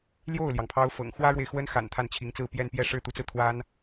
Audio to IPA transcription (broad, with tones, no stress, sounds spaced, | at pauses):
l j o˥˩ ʊ̯ l j ɑ˩ ŋ pʰ ɑ˧˥ ʊ̯ f ɤ̰˨˩ ŋ x w ä˥ ɻ w e˨ ɪ̯ x w ə˥ n x a̰˨˩ n t̪ʰ a˥˩ n t͡ɕʰ i˧˥ ŋ t͡s ɹ̩˥˧ p j ɛ˥˧ n p j ɛ˥˧ ʂ ɻ̩˥˩ t̪ u˧˥ t͡s ɹ̩˧ t̪ʰ w a˥ n